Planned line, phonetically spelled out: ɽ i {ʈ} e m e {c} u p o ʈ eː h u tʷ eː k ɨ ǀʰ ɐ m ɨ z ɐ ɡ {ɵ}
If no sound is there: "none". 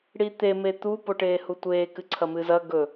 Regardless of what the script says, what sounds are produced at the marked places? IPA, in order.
t̪, t̪, ɵ

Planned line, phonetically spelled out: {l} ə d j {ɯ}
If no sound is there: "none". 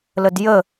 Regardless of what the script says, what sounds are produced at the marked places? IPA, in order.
l, ə

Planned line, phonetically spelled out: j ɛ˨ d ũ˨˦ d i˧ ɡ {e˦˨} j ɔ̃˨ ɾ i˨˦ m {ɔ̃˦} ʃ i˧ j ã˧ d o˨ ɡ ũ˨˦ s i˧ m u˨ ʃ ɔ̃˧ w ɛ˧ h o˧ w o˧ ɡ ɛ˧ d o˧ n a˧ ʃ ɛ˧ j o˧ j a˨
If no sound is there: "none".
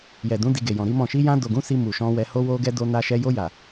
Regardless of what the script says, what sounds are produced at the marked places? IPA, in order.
e˨, ɔ̃˦˨

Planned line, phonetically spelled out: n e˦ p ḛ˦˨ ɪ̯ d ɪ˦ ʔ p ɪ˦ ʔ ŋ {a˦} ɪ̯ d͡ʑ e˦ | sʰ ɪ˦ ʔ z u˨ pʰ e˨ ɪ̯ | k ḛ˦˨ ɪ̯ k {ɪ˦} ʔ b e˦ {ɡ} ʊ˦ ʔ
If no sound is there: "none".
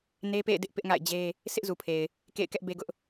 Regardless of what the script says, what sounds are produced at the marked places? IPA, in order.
a̰˦˨, ɛ˦, ɡ

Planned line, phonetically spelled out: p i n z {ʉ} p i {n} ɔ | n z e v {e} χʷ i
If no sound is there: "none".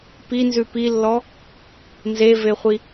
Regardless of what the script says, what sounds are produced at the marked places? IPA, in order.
ʉ, lː, e

